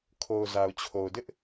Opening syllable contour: low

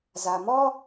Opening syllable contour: low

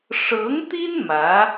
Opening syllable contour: rising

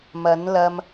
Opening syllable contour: rising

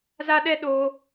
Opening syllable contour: high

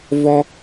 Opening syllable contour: high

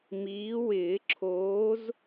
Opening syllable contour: rising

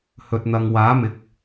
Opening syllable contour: low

